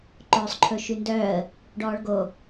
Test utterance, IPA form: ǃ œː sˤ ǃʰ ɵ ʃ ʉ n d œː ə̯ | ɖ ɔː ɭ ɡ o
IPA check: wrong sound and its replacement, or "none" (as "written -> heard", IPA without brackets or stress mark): none